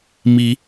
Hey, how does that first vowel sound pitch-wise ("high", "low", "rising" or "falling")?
rising